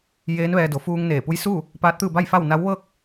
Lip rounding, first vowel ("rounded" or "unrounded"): unrounded